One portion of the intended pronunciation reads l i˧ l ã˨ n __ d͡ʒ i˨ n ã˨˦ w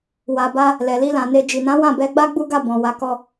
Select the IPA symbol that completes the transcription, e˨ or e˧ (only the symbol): e˧